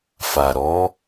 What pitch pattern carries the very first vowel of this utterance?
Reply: low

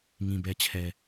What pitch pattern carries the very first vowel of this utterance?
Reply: low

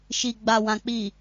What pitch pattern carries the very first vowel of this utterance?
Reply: low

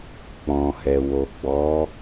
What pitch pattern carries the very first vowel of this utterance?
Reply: low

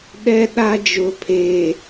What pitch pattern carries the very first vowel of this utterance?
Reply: high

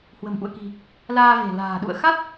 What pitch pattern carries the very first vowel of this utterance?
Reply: low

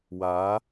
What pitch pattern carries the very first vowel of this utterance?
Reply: rising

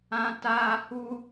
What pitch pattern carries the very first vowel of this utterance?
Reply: high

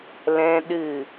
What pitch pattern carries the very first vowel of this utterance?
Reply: high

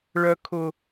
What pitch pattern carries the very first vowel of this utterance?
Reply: low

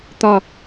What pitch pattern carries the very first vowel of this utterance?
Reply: falling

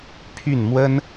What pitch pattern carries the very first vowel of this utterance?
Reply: falling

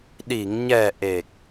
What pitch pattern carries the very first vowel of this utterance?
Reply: low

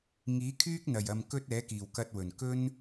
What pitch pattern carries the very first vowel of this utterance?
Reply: rising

